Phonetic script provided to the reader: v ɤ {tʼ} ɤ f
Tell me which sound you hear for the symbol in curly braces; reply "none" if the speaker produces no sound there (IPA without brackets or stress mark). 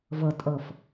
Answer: tʼ